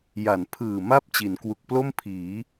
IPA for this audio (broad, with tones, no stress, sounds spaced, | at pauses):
j a˩˦ n pʰ ɯː˨˩ m a˦˥ p̚ t͡ɕ i˩˦ n k w u˨˩ k̚ p l o˥˩ m pʰ iː˩˦